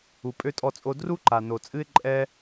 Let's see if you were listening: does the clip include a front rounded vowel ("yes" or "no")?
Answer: yes